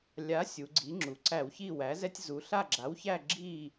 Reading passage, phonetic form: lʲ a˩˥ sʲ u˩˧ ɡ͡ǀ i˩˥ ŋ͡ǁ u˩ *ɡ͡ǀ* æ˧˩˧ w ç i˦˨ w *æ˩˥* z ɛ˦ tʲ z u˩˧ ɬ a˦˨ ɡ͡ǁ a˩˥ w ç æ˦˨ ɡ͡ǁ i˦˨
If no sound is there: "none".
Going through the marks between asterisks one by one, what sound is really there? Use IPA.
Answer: ǀ, æ˩˥

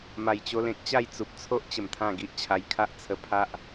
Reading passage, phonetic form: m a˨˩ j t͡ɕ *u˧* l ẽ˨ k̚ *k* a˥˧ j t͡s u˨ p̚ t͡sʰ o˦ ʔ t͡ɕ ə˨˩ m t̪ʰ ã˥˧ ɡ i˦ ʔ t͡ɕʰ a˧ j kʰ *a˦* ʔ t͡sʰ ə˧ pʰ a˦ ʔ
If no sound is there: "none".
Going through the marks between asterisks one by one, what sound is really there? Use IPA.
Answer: o˧, t͡ɕ, a˦

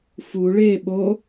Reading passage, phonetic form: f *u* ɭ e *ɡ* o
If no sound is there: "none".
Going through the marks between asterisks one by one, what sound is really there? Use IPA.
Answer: u, ɓ

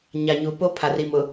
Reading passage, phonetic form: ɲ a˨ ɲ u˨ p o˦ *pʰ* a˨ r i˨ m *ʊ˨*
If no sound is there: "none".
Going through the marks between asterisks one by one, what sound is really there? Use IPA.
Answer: pʰ, ʊ˨

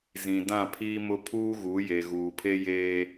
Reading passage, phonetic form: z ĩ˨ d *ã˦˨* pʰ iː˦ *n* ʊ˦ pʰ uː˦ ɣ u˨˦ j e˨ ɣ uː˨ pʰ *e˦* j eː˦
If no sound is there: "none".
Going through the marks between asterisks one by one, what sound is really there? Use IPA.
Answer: ã˦˨, m, e˦

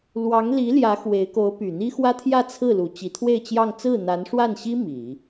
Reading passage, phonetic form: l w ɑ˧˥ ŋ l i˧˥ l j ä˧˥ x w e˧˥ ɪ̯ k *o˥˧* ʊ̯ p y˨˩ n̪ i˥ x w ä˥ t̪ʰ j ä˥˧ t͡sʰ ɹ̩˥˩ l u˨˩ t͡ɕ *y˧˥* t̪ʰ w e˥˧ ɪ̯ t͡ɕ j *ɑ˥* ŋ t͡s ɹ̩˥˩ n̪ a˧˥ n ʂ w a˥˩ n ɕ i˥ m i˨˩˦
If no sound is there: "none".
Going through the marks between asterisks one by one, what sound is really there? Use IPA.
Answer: o˧˥, i˧˥, ɑ˥˧

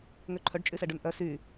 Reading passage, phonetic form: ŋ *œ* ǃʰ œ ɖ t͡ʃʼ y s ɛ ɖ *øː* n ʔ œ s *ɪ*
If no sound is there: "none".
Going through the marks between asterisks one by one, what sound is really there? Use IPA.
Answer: ø, ø, y

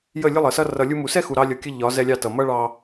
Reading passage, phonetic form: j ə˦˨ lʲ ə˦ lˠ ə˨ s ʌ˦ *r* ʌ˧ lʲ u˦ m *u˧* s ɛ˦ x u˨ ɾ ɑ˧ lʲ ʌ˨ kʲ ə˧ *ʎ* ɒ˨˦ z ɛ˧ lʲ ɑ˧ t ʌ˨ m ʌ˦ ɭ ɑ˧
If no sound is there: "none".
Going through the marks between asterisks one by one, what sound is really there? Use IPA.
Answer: r, u˨, ʎ

